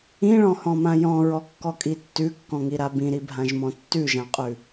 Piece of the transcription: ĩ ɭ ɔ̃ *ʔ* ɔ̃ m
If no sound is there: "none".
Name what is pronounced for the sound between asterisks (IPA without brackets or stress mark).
h